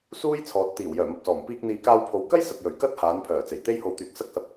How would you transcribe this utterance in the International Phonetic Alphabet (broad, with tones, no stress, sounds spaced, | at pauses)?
s uː˥ j t͡sʰ ɔː˨ t̚ t̪ iː˨˩ w j œː˨˩ m ɐ˨ p̚ s ɔː˨˩ m p iː˧ k̚ n̪ iː˨ k aː˧ w pʰ o˨˧ w k ɐ˥ j s ɐ˨ t̚ j ɵ˨˩ ɥ k ɐ˥ t̚ h aː˨˧ n pʰ œː˨˩ t͡s e˨˩ j t̪ e˥ j h o˧ w t̪ yː˨ k̚ s ɐ˥ k̚ s ɐ˧ p̚